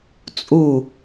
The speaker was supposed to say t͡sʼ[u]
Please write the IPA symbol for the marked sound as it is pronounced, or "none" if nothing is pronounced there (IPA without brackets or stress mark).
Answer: u